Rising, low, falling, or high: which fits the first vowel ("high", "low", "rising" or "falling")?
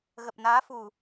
low